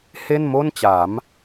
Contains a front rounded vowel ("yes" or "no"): no